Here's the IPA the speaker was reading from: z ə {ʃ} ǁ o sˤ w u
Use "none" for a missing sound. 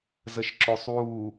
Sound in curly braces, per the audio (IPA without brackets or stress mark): ʃ